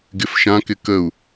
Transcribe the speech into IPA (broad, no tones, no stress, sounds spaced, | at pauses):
ɡ ɪ f ʃ ã k ɪ k ə u̯